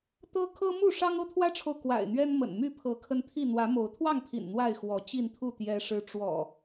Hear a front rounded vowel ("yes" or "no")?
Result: yes